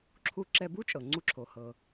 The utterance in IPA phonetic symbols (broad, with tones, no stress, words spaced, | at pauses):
ǁʰu˧ǁɛ˧bu˥t͡ʃʼɤ˩ ŋ͡ǀu˧ǁʰo˩hɤ˩